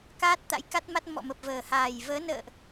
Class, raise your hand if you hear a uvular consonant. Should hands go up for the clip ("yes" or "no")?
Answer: no